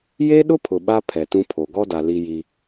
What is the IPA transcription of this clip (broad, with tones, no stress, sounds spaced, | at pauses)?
j e˦ ɗ ʊ˦ pʰ ʊ˨ ɓ a˦ pʰ ɛ˨ t ũ˦ pʰ o˨ ɡ ɔ˦ d a˨ l i˦ j i˦